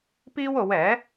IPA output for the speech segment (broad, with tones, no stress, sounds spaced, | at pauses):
p iː˥ w o˨˧ w ɛː˨˥